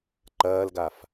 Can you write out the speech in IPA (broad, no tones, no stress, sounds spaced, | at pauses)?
ǃ ɐː l ɡ a f